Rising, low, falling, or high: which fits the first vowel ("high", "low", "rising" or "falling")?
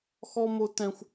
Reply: high